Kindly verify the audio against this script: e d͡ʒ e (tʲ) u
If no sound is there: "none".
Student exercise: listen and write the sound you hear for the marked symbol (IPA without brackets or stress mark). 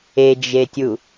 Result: tʲ